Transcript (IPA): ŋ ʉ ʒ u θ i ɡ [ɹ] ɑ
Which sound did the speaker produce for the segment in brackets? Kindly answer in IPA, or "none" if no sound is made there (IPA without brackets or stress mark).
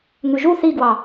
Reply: w